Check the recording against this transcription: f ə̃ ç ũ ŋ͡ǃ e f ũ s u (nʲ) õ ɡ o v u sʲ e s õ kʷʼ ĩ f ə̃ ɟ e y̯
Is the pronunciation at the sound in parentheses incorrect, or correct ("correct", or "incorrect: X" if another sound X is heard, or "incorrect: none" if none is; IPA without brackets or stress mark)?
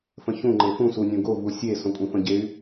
correct